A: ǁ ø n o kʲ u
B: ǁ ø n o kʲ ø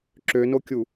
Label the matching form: A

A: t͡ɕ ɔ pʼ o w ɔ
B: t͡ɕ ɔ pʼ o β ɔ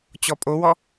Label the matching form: A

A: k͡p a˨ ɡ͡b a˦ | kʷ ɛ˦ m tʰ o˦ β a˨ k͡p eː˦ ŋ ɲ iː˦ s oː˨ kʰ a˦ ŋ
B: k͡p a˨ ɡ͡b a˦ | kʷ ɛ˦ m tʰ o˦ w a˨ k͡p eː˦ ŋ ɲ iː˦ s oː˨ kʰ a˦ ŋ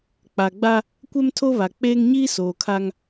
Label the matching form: A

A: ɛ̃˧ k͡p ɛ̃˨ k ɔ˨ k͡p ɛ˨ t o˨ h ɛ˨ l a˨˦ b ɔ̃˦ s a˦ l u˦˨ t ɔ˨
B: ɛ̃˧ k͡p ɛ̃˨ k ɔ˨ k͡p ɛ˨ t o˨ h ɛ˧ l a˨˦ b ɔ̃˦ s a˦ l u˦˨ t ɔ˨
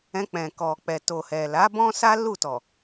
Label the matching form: A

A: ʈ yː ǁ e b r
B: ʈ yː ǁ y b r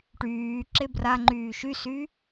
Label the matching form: A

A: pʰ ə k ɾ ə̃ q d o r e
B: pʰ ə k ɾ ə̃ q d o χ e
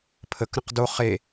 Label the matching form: B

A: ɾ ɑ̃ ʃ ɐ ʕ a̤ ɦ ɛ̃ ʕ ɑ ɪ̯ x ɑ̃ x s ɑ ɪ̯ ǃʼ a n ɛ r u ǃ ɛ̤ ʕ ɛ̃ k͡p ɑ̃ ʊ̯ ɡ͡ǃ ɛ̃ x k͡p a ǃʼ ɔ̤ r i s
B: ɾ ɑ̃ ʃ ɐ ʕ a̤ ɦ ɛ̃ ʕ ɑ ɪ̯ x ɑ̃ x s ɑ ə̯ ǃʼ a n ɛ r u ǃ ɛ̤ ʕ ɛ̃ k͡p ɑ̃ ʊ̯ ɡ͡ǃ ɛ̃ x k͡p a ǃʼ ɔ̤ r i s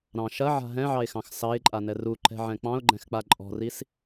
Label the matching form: A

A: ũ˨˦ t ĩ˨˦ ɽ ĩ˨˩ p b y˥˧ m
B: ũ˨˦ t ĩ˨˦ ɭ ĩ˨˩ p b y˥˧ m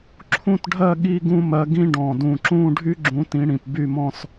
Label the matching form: A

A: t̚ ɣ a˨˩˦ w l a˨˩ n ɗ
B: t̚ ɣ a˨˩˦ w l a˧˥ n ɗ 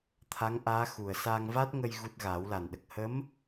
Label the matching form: A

